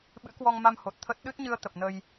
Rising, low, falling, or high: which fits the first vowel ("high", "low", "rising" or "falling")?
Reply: rising